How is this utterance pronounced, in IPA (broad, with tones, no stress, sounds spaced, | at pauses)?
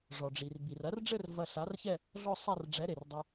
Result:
ʐ ɔ˩ ɖ͡ʐ i˩ r b i˩ r ɐ˨˥ r ɖ͡ʐ ɘ˥˧ r v ɐ˧ ɬ a˨˥ r ç ɛ˥˧ | ɮ ɔ˥˧ sˤ a˥˧ r ɖ͡ʐ ɛ˨˥ ɾ e˩ r dˤ ɐ˧